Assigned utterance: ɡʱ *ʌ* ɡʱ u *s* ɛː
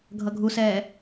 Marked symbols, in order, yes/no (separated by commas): yes, yes